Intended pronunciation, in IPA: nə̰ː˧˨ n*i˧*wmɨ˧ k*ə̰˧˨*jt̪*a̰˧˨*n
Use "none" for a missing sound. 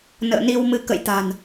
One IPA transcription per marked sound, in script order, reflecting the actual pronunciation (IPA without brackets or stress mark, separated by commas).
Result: i˧, ə̰˧˨, a̤˨˩